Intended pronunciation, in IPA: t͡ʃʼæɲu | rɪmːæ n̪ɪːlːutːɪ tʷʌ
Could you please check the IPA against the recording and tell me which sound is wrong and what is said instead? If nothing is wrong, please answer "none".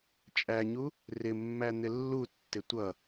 ɪː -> ɪ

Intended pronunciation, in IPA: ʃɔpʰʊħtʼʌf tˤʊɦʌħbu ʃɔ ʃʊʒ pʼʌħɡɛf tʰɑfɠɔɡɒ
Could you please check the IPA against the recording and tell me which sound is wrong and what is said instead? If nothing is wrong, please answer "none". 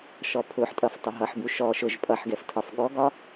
ɑ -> ɒ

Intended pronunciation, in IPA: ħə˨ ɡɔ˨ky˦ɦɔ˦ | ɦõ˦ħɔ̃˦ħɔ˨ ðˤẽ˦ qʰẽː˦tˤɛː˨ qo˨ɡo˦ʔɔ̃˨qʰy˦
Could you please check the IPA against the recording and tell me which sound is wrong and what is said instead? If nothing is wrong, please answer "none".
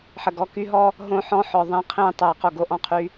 none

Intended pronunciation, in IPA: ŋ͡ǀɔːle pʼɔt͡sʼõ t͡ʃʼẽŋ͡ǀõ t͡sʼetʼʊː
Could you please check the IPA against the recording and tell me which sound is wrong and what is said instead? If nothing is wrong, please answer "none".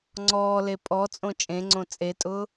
none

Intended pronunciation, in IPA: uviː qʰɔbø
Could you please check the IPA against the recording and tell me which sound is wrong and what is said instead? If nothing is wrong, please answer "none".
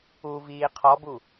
ø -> u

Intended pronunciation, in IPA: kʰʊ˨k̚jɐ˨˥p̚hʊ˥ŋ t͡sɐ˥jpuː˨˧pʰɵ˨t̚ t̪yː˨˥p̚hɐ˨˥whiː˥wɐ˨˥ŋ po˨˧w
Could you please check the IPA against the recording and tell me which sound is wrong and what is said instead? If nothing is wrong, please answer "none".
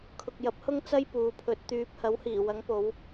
iː˥ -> iː˨˩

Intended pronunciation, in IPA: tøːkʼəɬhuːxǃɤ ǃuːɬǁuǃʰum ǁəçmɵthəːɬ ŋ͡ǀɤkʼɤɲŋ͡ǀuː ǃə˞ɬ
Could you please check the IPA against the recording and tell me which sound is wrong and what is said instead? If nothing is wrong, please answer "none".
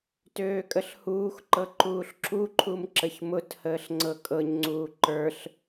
ɵ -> ʊ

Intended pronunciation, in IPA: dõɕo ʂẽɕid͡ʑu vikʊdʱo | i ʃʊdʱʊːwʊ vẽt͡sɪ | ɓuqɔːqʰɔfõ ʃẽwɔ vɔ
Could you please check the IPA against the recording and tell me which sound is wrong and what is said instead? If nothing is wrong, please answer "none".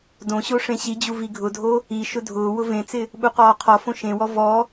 k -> ɡʱ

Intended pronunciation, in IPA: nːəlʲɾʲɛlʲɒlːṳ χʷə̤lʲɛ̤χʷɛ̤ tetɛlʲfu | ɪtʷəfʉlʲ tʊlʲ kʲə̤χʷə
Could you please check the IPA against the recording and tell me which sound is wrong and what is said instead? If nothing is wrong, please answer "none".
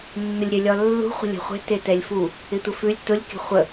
none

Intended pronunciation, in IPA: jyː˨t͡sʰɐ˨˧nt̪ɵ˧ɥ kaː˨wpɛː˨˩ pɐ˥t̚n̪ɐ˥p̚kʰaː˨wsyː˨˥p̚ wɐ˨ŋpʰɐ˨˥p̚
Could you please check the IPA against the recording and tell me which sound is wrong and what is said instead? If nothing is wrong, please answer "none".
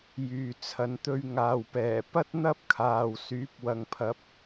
k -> ŋ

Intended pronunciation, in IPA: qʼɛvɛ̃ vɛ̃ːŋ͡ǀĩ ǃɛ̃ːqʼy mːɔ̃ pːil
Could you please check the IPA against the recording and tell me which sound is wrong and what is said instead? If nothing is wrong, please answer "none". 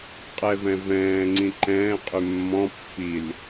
none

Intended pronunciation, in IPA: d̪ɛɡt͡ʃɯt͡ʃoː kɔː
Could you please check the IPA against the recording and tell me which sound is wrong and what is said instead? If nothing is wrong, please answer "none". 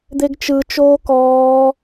ɛ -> e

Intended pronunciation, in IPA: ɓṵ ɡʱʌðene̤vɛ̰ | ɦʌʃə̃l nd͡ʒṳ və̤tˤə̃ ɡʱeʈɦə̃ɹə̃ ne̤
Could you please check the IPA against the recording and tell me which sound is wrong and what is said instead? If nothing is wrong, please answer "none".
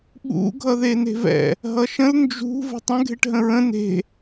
none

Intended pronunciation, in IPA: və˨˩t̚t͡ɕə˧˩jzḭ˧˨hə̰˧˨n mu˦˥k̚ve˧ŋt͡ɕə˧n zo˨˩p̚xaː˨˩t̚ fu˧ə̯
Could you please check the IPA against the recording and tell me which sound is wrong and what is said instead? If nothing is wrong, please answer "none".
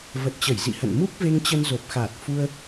none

